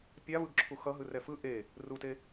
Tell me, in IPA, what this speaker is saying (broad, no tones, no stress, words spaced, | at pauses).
pʲavɯɡǁʰu xʌɦɯrɛ fɯ ʔe | rute